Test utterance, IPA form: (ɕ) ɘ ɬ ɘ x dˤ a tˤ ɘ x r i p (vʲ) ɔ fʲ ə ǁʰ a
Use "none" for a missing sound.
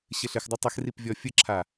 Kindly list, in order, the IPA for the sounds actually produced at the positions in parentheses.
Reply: ɕ, vʲ

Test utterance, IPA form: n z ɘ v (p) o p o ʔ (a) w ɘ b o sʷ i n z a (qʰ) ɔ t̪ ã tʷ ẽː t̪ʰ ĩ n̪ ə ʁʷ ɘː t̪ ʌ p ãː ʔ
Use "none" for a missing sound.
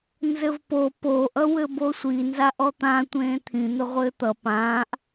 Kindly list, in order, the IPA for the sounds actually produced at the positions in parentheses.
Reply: p, ʌ, ʔ

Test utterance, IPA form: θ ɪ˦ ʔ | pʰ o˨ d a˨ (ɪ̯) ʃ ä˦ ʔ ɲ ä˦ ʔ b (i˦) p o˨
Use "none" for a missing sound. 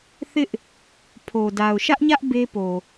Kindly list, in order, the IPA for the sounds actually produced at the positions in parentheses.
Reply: ʊ̯, e˦

